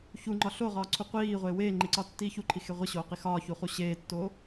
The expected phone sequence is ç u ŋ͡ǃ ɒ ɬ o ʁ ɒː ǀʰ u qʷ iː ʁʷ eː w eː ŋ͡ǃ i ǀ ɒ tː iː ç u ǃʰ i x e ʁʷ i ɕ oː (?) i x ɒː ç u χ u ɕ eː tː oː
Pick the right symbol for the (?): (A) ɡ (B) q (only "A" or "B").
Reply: B